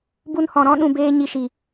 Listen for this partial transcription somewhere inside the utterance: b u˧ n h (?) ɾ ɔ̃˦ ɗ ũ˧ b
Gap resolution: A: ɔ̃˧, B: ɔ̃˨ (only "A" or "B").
B